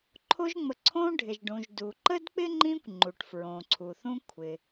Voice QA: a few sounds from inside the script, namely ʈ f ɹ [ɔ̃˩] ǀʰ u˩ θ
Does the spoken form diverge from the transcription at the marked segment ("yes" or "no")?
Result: yes